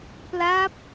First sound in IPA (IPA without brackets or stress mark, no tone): p